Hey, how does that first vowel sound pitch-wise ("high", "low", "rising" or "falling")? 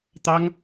high